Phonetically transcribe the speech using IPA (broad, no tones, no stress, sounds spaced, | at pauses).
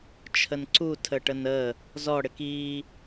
t͡ʃʰ ə n ǀ u tʰ ə ʈ ə n ə | z ɔ ɽ ɪ k i